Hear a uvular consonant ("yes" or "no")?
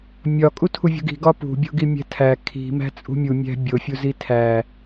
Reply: no